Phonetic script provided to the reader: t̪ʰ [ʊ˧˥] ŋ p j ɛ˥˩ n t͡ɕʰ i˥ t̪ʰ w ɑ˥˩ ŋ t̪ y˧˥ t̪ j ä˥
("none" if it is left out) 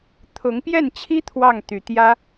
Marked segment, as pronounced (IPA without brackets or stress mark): ʊ˧˥